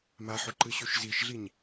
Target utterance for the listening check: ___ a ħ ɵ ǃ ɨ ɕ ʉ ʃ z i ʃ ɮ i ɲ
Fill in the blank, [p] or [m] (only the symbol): m